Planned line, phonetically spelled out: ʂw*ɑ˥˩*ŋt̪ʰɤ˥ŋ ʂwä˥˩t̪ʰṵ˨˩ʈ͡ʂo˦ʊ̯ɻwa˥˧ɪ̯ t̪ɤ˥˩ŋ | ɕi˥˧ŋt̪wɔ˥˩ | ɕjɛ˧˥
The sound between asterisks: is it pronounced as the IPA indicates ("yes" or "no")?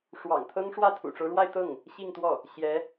no